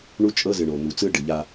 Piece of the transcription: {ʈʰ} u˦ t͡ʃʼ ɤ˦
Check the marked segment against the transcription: incorrect: ɳ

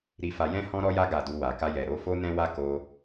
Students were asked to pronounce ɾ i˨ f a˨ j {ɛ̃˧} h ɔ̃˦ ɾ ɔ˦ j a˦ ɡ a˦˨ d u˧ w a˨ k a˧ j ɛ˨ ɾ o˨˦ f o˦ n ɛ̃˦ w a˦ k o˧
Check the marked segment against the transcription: correct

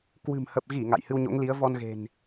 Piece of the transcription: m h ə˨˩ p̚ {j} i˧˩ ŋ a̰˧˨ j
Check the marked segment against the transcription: incorrect: ɣ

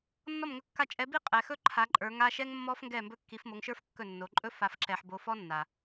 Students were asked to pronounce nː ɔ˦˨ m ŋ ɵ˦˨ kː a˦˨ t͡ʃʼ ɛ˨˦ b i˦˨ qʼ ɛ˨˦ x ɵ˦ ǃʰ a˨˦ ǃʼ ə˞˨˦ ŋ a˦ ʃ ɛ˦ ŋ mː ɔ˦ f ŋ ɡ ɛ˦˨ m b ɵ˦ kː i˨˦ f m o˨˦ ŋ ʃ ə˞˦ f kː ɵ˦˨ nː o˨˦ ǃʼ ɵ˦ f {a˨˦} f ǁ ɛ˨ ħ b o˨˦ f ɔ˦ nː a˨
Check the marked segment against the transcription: correct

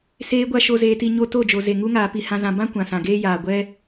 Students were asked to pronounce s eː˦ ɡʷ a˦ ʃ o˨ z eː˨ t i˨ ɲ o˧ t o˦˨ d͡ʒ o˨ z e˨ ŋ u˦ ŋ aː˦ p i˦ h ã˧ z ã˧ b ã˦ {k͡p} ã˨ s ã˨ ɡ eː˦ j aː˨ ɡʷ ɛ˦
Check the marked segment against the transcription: incorrect: kʷ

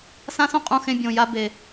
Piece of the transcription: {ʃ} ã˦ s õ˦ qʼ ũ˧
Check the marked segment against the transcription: incorrect: s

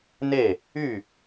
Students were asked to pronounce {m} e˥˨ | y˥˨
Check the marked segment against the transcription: incorrect: n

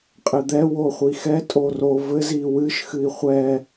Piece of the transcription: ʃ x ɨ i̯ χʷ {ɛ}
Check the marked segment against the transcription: correct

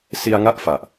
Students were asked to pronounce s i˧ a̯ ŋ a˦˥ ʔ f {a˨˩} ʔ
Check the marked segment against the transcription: correct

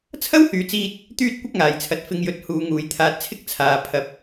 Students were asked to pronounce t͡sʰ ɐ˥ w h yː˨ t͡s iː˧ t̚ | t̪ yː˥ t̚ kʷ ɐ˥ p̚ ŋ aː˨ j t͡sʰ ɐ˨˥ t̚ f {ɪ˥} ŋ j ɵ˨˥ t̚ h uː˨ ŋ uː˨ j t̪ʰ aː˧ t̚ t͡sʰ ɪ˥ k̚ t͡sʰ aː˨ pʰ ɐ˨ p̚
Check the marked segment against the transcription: incorrect: ɪ˨˧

